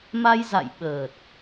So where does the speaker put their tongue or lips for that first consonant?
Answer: lips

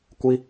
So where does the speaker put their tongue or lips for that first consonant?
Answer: velum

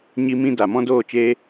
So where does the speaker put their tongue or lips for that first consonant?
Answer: palate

